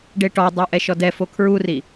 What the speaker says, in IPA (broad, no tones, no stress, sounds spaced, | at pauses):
ɖ e ʈ ɔ dˤ o ʔ ɛ ʃ ɔ d ɛ f o kʰ ɹ u r i